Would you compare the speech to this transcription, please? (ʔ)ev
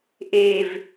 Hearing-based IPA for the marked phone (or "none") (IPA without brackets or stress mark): ʔ